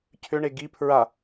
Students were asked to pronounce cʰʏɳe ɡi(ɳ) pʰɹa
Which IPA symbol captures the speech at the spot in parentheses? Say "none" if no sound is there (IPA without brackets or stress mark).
none